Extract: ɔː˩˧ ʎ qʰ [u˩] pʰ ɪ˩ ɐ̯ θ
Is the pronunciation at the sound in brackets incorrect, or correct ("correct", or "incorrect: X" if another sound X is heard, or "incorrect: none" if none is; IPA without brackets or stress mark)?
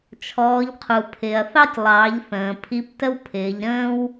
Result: correct